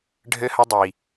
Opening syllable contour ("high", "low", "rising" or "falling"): high